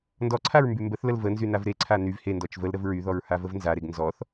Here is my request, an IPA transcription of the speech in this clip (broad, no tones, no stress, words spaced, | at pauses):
ndɔǀʰaɹ mbymbəθləl vənzy navɾeǀʰa nyv hendɔt͡ʃ vəl ɾəvɹyðɔɹ havəvnzaɾeɡ nzɔθ